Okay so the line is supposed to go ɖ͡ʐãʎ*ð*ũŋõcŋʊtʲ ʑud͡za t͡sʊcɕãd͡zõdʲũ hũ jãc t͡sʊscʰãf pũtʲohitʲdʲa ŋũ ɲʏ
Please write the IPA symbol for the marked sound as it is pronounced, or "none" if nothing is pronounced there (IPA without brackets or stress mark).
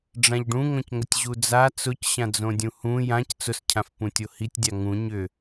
ɖ